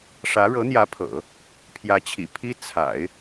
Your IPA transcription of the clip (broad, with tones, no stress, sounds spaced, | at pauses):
ʂ ä˧˥ ɻ ɤ˧˥ n̪ j ä˧˥ pʰ ɤ̰˨˩˦ | pʰ j ä˧˥ t͡ɕʰ ḭ˨˩ pʰ i˥ t͡sʰ a̰˨˩˦ ɪ̯